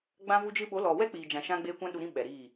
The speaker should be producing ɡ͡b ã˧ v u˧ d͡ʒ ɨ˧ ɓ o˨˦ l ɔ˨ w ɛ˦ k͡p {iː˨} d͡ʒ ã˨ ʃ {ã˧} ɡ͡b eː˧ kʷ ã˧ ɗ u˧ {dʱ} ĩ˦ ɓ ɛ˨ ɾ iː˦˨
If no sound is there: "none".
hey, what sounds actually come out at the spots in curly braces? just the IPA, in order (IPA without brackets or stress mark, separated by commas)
iː˨, ã˧, ɾ